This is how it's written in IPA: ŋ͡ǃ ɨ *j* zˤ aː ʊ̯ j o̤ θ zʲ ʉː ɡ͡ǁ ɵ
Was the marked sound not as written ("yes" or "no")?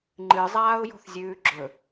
yes